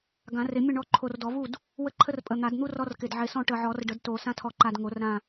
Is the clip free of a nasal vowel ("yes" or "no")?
no